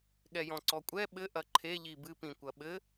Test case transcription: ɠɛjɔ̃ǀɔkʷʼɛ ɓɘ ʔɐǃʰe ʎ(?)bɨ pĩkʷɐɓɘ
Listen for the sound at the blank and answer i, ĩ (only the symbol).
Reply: i